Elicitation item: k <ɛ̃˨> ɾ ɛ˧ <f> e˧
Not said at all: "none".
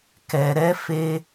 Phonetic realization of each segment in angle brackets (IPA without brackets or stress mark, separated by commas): ɛ˨, f